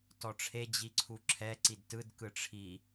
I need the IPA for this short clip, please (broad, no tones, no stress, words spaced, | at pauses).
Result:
tɔʈ͡ʂʰe d͡ʑiǀʰuǁʰɛ ǀidtɯd kɯʈ͡ʂʰi